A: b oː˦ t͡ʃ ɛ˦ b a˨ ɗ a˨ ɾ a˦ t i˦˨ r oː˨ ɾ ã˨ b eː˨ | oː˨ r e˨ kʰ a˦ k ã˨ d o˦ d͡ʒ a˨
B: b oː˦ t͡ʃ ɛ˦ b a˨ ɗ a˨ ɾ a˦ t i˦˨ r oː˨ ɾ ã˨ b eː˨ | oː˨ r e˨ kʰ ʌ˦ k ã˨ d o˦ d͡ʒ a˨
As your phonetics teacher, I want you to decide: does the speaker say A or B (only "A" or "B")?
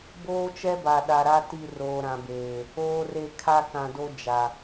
A